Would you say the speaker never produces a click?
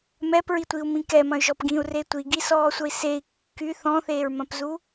yes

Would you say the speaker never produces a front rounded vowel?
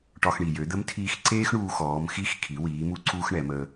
no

